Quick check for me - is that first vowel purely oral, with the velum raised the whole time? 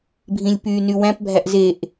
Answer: no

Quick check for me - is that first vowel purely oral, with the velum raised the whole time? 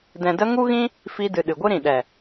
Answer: no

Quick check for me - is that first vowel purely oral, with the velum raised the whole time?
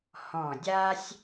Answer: no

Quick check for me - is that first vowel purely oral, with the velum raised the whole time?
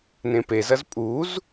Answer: no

